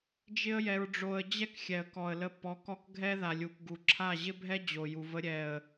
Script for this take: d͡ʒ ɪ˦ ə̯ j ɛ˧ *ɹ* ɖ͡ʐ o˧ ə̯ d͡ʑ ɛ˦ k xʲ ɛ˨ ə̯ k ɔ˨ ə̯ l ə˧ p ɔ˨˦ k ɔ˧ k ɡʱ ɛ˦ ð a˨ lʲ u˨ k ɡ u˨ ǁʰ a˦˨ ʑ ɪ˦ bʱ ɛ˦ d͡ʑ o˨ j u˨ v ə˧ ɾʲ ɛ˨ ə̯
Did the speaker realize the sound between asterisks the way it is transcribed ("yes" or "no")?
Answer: yes